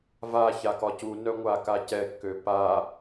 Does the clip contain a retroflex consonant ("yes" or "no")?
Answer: no